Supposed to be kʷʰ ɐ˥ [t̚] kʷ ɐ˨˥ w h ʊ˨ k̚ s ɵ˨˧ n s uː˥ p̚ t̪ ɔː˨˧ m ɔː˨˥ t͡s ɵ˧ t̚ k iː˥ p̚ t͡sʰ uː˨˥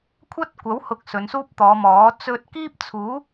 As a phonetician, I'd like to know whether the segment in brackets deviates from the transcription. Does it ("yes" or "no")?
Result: no